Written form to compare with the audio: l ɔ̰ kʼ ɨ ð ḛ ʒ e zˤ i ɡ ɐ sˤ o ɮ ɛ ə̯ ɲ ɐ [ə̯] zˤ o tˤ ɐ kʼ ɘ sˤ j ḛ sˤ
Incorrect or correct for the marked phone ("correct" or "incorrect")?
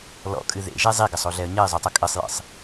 incorrect